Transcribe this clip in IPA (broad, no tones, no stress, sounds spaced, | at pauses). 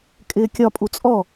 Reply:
kʼ ɪː kʲ ɒ pʼ u t͡sʼ ɔ